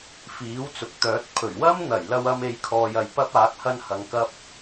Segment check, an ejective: absent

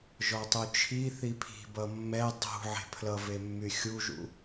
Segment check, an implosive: absent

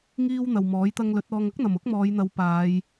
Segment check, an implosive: absent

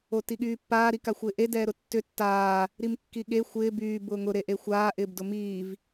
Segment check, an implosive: present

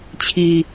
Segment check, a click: absent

